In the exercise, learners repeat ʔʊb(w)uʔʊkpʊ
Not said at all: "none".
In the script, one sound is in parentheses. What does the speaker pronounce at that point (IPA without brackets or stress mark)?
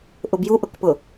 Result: j